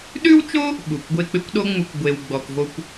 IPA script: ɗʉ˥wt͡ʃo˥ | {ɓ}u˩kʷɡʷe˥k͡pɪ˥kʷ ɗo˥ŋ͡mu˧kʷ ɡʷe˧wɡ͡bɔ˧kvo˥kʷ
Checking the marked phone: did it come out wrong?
no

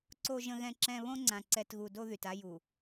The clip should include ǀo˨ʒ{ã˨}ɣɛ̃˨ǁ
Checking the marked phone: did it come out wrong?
yes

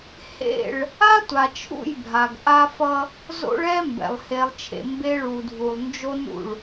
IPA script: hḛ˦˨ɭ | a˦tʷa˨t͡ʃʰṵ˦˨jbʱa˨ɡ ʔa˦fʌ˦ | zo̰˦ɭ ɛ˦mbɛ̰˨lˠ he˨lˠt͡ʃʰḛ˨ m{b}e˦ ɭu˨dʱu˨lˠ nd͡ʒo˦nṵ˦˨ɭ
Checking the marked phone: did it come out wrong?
no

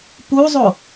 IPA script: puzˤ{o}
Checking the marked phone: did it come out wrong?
no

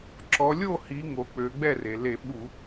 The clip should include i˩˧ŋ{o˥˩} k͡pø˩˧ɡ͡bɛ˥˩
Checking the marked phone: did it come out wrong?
yes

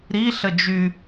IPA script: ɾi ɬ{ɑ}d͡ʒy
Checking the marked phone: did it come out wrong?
yes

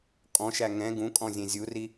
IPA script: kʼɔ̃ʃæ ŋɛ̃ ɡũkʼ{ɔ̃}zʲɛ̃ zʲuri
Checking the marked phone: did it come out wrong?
no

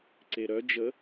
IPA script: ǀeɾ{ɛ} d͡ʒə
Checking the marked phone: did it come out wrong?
yes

